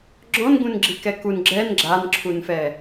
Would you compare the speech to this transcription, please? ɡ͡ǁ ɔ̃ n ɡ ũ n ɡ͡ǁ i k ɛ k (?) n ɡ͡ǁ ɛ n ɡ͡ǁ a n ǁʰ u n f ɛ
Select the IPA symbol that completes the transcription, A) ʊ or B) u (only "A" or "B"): B